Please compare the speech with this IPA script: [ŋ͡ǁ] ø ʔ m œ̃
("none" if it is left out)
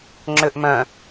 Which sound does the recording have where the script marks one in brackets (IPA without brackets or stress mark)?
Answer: ŋ͡ǁ